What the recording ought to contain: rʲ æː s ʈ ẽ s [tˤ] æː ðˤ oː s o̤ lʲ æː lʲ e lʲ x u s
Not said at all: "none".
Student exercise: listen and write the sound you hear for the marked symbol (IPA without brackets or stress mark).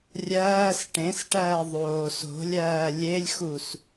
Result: ʈ